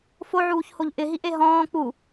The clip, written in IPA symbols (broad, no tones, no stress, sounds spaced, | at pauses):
f o ʕ uː ç h o ʎ ʔ ɪ ɦ i ʔ e ɦ ɔ̃ː k͡p u